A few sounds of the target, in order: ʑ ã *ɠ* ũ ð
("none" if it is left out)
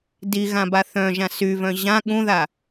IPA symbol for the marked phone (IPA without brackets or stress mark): ɠ